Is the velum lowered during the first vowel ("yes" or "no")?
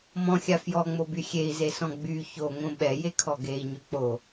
yes